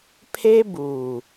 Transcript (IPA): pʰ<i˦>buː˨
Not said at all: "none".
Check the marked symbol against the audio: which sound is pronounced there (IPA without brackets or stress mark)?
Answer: e˦